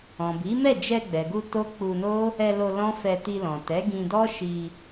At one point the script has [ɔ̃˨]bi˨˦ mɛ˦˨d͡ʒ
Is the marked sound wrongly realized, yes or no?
no